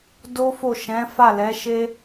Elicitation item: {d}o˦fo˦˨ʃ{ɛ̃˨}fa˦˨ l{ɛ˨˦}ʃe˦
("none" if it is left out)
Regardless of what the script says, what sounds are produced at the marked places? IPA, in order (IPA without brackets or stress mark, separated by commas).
d, ɛ̃˨˦, ɛ˨˦